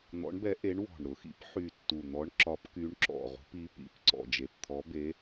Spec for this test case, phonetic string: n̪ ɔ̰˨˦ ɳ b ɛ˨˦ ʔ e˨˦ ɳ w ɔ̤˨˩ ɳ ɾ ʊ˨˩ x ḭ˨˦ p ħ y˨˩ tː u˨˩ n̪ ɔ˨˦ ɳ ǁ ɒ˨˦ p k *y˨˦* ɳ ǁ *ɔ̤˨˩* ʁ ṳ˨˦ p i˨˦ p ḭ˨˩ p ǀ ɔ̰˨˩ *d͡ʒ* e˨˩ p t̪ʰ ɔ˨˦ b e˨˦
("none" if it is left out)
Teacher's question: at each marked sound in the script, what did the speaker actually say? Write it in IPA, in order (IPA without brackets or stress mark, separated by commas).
y˨˦, ɔ̰˨˩, d͡ʒ